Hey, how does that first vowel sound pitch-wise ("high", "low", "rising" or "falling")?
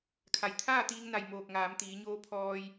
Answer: low